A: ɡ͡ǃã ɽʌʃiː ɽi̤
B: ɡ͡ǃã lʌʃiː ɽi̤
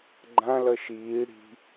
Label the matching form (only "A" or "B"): B